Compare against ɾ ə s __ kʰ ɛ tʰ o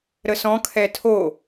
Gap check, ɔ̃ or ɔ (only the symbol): ɔ̃